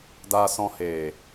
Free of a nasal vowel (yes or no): no